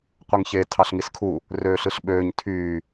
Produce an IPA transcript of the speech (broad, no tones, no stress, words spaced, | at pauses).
qʷɯŋçe tʰɑɬŋiskʰu | røːɬɯɬɓøːɲ tʰyː